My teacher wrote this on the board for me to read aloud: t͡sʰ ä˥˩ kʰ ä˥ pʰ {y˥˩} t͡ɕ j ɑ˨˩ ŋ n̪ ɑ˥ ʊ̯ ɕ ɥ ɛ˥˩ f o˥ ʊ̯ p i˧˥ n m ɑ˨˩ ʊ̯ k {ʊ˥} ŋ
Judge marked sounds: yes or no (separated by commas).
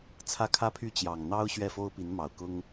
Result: yes, yes